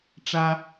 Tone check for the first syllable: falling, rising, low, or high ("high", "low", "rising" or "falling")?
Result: high